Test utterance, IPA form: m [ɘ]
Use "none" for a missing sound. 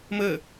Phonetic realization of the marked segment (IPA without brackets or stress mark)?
ɘ